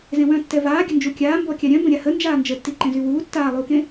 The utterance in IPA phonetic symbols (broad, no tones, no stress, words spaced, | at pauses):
zẽwœ̃ tːɛvaː ɡʲənd͡ʒukʲaː mbɔkʲaɾʲœ̃ bə̃ɾʲahə nd͡ʒaːnd͡ʒətːi ǃẽzywuː tːaːlˠuːkẽ